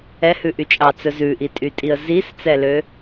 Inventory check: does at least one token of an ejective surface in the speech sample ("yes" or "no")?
yes